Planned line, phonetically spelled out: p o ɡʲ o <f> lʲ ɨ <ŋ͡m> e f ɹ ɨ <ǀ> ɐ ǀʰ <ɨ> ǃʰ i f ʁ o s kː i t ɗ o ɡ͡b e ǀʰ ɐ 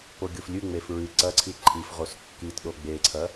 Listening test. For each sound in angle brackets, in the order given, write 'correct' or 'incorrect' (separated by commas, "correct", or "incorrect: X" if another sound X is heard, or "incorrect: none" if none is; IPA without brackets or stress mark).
correct, correct, correct, incorrect: i